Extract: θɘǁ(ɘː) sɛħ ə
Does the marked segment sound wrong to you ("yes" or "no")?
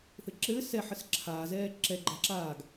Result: no